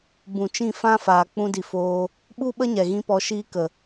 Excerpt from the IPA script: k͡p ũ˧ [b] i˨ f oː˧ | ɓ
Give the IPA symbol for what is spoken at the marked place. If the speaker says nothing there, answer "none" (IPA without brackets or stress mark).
d